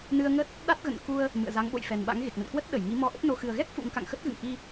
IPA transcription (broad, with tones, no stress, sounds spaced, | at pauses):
n ɨ˧ ə̯ ŋ ə˦˥ t̚ | ɗ a˦˥ t̚ ɣ ə̰˧˨ n k u˧ ə̯ | m ɨ̰˧˨ ə̯ z a˨˦ ŋ ɓ o̰˧˨ j f ɛ˨˩ n ɓ a̰˧˥ ŋ ɣ e˨˩ k̚ n ə̰˧˨ n k w ə˦˥ t̚ ɗ ə˧˩ j ŋ i˨˦ m ɔ˧ ʔ ə˦˥ t̚ n o˧ x ɨ˨˩ ə̯ ɣ ɛ˦˥ k̚ f ṵ˧˥ ŋ k a̰˧˨ ŋ x ə˦˥ t̚ ɣ ɨ̰˧˨ ŋ ʔ i˧